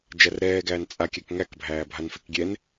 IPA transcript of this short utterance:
d͡ʒærɾɛːɡæːn t͡sʼa kʲækŋækbʱæː bʱanfekɡʲɛn

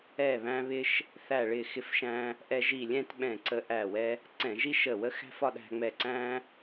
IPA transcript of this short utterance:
ɛ˧˩βæ̃˧βɪ˧ʃ | θæ˧˩ɭɪ˧˩xɪ˧fʃæ̃˧ | ʔɛ˧ʒi˧˩lʲɛ̃˥˧t ɓɛ̃˧˩ǀə˧ ʔæ˧˩wɛ˧ | ǀɛ̃˧˩˧ʒi˥ ʃə˧˩wə˥ xæ̤˥˧fɒ˥˧ɗæ̤˧ŋ͡mɛ˧˩ ǀæ̃˥

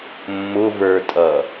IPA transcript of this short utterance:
mːʊvə˞tʼʌ

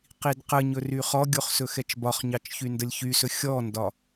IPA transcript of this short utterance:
qidqəɲɵr yχɔɡʲoχ sɵxɛt͡ʃbɒχɲɑt͡ʃ çyndəlʲçysɵ xʲɔndɒ

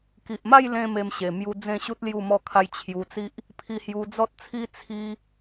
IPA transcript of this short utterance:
ki˨ʔma˥˧jlẽ˧ me˧mɕe˨˩ mju˧ d͡zẽ˥˧ɕu˦t̚ lju˥˧mɔ˥˧kʰa˦j t͡ɕʰju˧t͡si˦ʔ | pʰi˧hju˧d͡zɔ˦t̚t͡sʰi˦ t͡sʰi˦

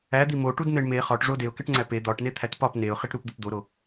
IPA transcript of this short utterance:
æd̪i moʈudn̪eɳ me χɒʈʐo deʊ̯keʈŋ͡ǀæ pe d̪ɒʈne t̪ʰætpɒp neʊ̯χiʈ ɾupd̪upd̪oɾo

